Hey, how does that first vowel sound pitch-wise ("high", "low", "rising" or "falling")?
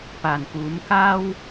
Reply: low